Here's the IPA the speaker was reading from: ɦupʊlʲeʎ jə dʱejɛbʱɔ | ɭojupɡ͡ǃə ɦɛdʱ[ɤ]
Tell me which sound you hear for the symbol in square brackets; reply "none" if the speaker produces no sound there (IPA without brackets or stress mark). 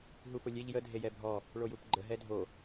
o